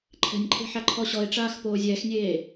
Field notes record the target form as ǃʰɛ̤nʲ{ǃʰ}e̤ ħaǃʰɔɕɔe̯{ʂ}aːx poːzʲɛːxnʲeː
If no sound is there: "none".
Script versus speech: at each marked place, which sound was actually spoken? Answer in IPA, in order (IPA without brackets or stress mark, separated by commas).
ǃʰ, ʈ͡ʂ